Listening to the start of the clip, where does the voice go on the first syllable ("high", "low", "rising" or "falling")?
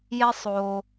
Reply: high